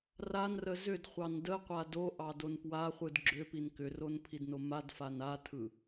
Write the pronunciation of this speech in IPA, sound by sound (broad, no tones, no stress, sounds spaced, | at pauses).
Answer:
r a n r ə z ʏ d χʷ ɑ n d ə qʷ a d o ʔ ɑ d o n p w a χʷ ɯ d ɡ͡ǁ ʏ p i n k ʏ r o n pʰ i d n o m a d f a n a tʰ ɯ